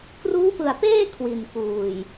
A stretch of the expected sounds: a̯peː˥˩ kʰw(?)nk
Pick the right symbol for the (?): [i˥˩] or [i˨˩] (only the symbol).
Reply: i˨˩